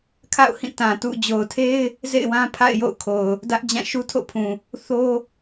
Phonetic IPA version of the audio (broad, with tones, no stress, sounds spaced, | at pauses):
kʰ a̰˦˨ ʊ̯ h ĩ˦˨ t ã˨ t ṵ˦˨ d͡ʑ o˨ ʊ̯ tʰ e˦ ɪ̯ | z ḛ˦˨ ɪ̯ w ã˦ pʰ a̰˦˨ ɪ̯ j o̰˦˨ ʊ̯ kʰ o˨ ʊ̯ | d ä˦ ʔ d͡ʑ ã˦˨ ʃ u˦ tʰ o̰˦˨ pʰ ũ˨ | θ o˦